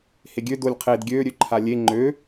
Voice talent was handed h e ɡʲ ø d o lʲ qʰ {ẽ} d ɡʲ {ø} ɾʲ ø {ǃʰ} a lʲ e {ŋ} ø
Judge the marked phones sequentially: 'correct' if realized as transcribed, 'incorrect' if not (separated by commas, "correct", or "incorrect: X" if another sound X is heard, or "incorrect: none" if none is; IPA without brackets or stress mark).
incorrect: e, correct, correct, incorrect: ŋ͡ǃ